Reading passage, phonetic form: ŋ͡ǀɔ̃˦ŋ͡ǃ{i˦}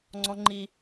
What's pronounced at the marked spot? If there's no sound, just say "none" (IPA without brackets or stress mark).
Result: i˦